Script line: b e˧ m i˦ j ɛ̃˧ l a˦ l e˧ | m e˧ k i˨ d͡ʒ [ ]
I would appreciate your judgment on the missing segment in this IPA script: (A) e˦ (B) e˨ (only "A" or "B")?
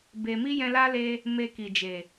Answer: B